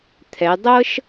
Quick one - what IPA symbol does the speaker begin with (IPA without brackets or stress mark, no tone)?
t̪ʰ